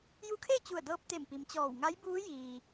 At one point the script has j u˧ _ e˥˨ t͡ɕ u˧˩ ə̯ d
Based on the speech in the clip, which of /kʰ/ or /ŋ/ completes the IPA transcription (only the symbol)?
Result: kʰ